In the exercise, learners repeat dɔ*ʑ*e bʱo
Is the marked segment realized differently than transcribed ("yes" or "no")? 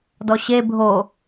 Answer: yes